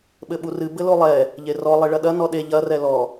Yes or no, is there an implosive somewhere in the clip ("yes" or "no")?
yes